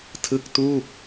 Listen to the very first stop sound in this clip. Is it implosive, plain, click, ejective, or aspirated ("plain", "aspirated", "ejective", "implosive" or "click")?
aspirated